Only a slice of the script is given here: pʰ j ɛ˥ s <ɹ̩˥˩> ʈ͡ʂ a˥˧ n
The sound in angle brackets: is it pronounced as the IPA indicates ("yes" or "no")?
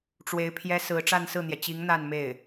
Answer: no